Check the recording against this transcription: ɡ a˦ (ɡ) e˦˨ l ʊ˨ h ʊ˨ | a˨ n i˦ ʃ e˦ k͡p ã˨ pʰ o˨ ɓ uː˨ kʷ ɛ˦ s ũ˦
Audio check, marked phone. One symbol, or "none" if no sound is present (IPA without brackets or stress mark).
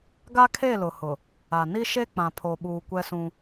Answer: kʰ